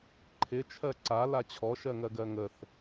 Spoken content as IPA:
ǃʰ ɪ t͡ʃʰ ɜ ǀ a l a t͡ɕʰ ɔ ʃ ɜ ŋ ɜ ɡ ɜ ŋ ə θ

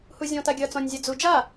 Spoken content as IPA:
h u zʲ ɔ̃ t a ɡʲ ɐː t͡s ɔ̃ nʲ zʲ a d͡z u d͡ʒ a

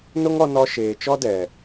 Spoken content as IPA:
n o˦ ŋ ɔ˧ n ɔ˧ ʃ eː˨ t͡ʃ ɔ˦ d ɛ˨

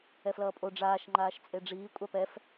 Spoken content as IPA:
ɛ f l ʌː pʼ o ɖ͡ʐ aː ʃ ŋ͡ǃ aː ʃ t͡sʼ e ɖ͡ʐ iː kʷʼ a p ɛ f

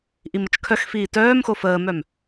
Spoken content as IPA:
ʔ i m ə t͡ʃ kʰ œ x f iː t œː m x o f əː m œ m

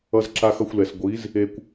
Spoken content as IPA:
ʌ˧ z ǁ a˧ x ʌ˧ xʷ l ɛ˨ s ɡʷ i˨˦ z | e˧ kʷ

